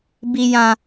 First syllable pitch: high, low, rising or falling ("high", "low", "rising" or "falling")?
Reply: low